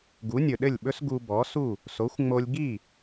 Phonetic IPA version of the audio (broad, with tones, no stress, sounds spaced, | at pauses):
ɡ u˩˥ nʲ ɵ˩ ɗ ɘ˥˩ lʲ ɓ ɵ˥ s ɡ u˧ b ɔ˩˥ s u˥˩ | s o˩˥ xʷ ŋ͡m o˧ lʲ ɡ i˥˩